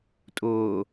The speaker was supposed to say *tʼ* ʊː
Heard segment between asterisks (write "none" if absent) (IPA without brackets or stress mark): tʼ